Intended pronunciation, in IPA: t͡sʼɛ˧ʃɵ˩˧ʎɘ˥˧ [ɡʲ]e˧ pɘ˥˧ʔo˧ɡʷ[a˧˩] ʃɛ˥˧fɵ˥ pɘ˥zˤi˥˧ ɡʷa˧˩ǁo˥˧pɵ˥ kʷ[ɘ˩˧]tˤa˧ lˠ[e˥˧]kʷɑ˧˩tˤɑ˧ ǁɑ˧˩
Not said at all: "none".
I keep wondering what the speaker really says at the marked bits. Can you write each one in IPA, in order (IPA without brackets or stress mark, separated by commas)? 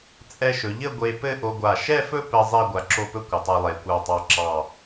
ɡʷ, a˧˩, ɘ˩˧, e˩˧